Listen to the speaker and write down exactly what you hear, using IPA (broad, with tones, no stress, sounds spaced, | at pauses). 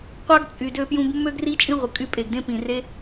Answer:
qʷ ɑ˦ ɡ t͡sʼ y˨ d ø˧ p j ũ˧ ɡ mː ø˦ ɡ r i˦ t͡ʃʼ ĩ˦ ʁʷ ɯ˨ kʼ y˧ pʼ e˨ ɡ d ẽ˦ p ĩ˨ r e˦